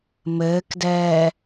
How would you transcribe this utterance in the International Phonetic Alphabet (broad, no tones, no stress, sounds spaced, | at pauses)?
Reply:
m ɘː k d ɛː